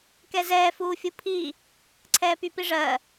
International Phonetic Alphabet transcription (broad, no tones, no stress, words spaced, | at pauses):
kɛzɛː fuːfʲupʰi | ǀʰɛːpypiʐɜ